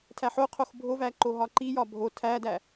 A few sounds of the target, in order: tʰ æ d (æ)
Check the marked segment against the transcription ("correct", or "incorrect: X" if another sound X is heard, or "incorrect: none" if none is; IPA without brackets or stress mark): correct